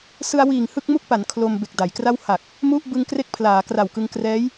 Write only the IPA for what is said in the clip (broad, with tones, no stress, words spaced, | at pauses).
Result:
sɯ˧a̯wiː˨˩ŋ hɯ˥˩k̚mu˥˩k̚pa˩˦n kʰlo˧m be˨˩k̚da˩˦jkra˥˩w ha˨˩k̚ | mu˥˩ʔ bɯ˧ŋ kre˥˩k̚pʰlaː˩˦ kra˨˩wkɯ˧ŋkrɛː˦˥j